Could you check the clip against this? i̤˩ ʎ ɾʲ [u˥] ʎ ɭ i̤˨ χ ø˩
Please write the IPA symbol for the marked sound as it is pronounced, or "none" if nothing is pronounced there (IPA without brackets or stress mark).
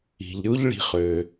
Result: u˥